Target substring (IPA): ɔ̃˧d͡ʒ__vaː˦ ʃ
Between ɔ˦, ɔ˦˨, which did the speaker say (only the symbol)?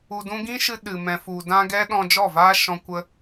ɔ˦˨